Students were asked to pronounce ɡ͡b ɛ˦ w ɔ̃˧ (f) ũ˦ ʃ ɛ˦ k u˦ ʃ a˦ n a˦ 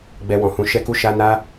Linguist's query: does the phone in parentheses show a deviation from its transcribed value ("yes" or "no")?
yes